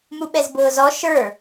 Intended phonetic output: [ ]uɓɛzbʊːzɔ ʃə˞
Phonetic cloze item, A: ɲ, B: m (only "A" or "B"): B